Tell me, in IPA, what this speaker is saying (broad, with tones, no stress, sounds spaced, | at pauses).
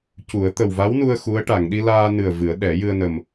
c u˨˩˦ ə̯ t̪ ə˨˩ w v a˧˥ w n u˧ ə̯ x u˧˥ ə̯ ʈ a˨˩˨ ŋ ɗ i˧ l aː˧ n ɨ˨˩ ə̯ v ɨ˨˩˦ ə̯ ɗ ɛ˨˩˦ j ɨ˧ ə̯ n ə˨˩ m